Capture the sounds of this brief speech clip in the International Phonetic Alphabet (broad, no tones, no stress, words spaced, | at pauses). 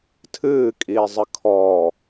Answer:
tʰɨːkʼiːzˤɨ kʰɔ